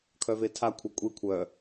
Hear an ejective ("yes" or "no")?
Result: yes